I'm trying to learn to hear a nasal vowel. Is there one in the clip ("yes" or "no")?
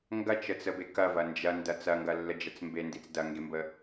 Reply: no